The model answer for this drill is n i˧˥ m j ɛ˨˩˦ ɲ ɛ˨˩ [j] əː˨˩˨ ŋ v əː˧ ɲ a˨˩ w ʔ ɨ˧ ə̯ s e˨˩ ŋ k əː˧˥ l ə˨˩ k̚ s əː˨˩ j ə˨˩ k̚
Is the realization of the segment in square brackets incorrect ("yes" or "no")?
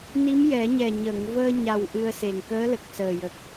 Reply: yes